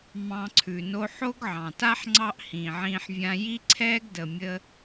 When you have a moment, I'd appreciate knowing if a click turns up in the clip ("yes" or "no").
yes